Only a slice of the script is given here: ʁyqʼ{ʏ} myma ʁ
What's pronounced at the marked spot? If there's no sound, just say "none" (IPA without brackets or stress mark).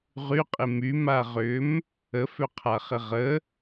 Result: ɪ